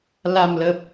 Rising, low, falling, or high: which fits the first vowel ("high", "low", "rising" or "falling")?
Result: low